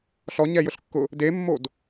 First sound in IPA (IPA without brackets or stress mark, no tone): ɬ